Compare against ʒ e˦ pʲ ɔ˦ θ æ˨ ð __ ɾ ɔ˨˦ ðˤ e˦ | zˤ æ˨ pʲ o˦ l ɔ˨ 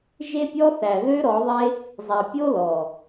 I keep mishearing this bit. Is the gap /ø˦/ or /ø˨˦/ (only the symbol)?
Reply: ø˦